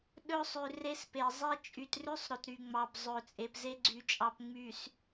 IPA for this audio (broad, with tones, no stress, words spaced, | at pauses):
ɗɵ˦sˤʉ˨ re˦spe˨ zˤe˦ t͡ʃʼy˨trʉ˦sˤ ɾɵ˨tɾy˨ŋ͡mɑ˨b zˤɵ˨ t͡sʼe˨pze˦ɡ͡ǀy˨t͡ʃʼɑ˨p ŋ͡my˨s